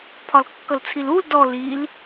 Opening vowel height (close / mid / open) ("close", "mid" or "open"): open